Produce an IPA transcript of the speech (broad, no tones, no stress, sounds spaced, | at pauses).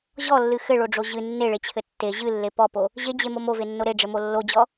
ʑ ɔ lː ɨ x ɘ ɭ o ɖ͡ʐ o ʑ ɨ nː e ɭ e t͡ɕʰ ɘ tː e ʑ ɨ lː e p ɔ p o | ʑ e d͡ʑ e m o m o v e nː o ɾ e ɖ͡ʐ ɘ m o lː o d͡ʑ ɔ